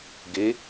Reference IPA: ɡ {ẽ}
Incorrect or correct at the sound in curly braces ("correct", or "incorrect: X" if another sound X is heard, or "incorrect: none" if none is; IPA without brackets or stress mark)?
incorrect: e